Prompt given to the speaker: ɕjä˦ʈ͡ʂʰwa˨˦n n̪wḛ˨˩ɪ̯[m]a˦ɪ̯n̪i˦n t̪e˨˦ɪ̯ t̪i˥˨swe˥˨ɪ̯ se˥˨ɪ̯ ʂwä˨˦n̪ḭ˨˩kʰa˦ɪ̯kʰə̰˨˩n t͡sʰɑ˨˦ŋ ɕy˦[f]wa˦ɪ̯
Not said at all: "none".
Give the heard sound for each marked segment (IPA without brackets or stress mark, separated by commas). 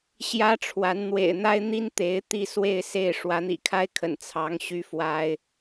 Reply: n̪, f